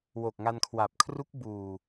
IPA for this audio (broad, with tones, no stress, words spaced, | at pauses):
wo˨˩k̚ŋa˧nkʰwa˨˩p̚kʰru˦˥k̚ buː˨˩